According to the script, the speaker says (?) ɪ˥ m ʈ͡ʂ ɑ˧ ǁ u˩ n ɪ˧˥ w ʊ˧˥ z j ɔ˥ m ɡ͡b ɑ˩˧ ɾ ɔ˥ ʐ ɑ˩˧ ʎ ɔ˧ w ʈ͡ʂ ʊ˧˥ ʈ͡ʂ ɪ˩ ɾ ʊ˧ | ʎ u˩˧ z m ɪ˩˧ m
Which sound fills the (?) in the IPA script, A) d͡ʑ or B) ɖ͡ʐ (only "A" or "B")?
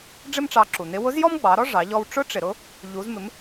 B